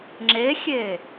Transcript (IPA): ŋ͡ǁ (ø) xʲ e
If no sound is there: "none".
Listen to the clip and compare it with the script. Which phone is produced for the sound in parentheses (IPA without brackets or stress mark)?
e